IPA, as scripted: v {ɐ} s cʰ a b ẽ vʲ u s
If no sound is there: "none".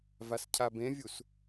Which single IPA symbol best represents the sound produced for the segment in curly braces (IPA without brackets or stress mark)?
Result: a